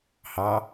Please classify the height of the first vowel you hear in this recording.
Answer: low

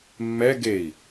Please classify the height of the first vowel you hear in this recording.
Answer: mid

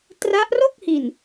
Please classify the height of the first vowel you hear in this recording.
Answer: low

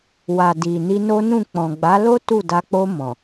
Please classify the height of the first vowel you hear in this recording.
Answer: low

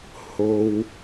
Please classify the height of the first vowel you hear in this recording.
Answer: mid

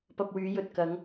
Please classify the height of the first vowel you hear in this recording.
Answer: low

